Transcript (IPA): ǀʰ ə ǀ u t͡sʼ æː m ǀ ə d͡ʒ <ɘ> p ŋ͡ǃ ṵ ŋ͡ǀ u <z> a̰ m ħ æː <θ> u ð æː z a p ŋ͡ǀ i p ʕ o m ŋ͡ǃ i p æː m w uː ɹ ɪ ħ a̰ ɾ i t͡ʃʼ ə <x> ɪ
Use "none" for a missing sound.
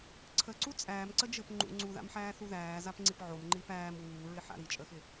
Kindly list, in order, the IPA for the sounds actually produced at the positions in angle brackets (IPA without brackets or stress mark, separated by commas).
ɘ, ð, θ, x